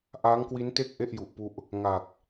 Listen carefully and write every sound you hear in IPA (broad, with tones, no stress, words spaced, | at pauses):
ʔaː˦˥ŋkwi˦˥nte˥˩k̚ ʔe˥˩ʔju˨˩ʔpu˦˥ʔ | ŋa˨˩k̚